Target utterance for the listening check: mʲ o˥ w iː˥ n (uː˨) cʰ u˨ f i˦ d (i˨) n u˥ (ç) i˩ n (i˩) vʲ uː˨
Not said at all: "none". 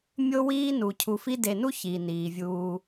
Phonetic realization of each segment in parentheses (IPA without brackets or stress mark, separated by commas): u˨, e˨, ç, iː˩